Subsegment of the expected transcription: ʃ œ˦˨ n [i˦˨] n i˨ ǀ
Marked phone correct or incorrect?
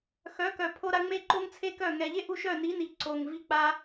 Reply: incorrect: i˨˦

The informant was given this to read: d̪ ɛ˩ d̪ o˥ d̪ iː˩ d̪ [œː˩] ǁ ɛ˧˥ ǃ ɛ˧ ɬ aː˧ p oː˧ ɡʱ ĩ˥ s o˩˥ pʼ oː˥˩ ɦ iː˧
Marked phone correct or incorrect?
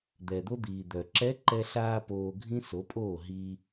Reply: incorrect: œ˩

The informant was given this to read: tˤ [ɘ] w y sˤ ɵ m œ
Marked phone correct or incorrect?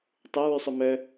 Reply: incorrect: ɛ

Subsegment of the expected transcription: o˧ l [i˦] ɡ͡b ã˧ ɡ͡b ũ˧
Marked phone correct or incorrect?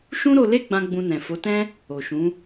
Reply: incorrect: e˦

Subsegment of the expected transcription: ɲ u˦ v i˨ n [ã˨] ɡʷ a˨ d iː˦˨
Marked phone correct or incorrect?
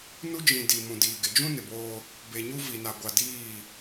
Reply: incorrect: a˨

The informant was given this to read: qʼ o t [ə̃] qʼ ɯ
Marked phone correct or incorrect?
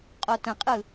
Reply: correct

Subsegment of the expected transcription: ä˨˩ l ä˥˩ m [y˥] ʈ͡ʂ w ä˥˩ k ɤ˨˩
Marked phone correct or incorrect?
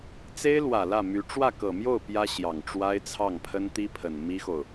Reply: incorrect: y˧˥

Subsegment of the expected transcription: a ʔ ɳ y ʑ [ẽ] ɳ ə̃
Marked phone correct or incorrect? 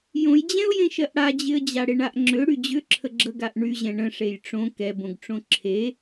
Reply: incorrect: ɛ̃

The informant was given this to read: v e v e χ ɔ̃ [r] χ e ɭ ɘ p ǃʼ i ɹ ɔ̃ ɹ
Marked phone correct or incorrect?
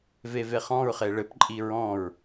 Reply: incorrect: ɹ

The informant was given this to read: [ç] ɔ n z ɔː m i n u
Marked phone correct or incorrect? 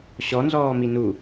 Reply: incorrect: ɕ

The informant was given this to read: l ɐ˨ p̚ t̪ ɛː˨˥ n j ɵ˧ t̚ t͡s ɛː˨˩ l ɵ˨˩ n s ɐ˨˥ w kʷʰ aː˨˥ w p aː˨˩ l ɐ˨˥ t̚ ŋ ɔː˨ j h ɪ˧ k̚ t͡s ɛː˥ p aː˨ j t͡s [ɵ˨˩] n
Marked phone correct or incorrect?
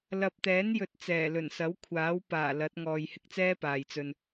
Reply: incorrect: ɵ˧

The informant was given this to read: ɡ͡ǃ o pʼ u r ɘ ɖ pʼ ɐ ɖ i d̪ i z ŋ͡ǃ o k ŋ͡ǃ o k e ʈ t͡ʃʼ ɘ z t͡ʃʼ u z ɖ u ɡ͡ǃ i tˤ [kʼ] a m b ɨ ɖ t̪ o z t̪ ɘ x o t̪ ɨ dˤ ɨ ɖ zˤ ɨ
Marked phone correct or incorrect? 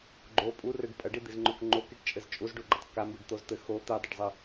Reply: incorrect: k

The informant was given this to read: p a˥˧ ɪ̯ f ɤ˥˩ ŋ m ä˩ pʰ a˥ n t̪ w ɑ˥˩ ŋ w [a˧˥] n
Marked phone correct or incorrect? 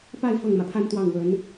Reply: incorrect: ə˧˥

